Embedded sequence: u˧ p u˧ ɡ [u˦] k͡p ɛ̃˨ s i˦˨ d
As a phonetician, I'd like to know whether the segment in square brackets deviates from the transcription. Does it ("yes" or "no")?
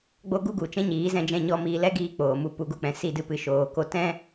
no